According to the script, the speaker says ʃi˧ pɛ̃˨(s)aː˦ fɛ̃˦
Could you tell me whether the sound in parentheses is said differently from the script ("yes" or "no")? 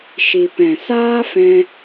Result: no